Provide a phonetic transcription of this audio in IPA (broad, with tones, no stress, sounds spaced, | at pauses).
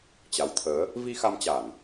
t͡ɕ a˨˦ w t̪ʰ əː˨˦ | v i˧ x a˧ m t͡ɕ a˧˩˨ n